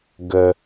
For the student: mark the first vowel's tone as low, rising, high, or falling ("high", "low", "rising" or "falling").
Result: low